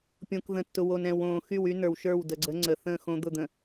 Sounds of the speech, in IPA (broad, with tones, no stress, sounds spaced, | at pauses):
pʲ õ˨ k ð ə̃˨ tː ʊ˨ w o˨ n ɛ̃˨ w õː˨ x y˦˨ w y˦ n ə˞˨ w ʃ ə˞˦˨ w d ə˨ ɡ͡ǀ ə˨˦ ŋ͡ǀ ə˨ θ ə̃ː˦˨ x õ˦ d̪ ʊ˦˨ d̪ ə̃˨